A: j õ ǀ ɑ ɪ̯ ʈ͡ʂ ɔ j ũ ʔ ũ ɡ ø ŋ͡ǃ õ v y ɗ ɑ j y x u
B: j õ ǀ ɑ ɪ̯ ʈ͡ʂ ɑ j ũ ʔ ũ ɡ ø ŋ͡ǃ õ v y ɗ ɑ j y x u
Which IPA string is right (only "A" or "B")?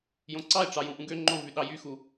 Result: B